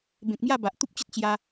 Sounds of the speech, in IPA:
bẽ˨k̚mja˥˧ ba˨ʔ t̪u˦p̚t͡ɕə˦t̚ t͡ɕja˧

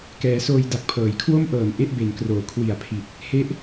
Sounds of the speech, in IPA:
kɛː˩˦soː˧j da˨˩k̚pʰɤː˩˦jkʰwo˥˩m ʔɤː˨˩nʔe˥˩ʔbe˩˦nkroː˩˦ kʰwi˨˩a̯pʰi˨˩t̚ | he˦˥ʔ

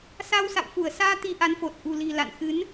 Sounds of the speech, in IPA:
sa˧wsa̰˧˨w fu˧˩ə̯saː˧ t̪i˧ʔa˨˦nfo˨˩t̚ ʔṳ˨˩li̤˨˩ la̰˧˨nxɨ˨˦n

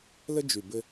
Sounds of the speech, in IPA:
lə˦d͡ʒy˨ bɘ˦

